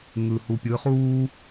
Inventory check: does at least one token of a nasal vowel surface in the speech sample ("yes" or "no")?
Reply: no